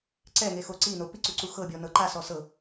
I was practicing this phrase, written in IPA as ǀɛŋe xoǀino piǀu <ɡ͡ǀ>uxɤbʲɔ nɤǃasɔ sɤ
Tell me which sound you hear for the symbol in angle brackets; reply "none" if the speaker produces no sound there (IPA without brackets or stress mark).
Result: ǀ